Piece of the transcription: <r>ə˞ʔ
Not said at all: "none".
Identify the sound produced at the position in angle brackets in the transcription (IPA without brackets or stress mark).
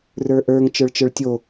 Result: r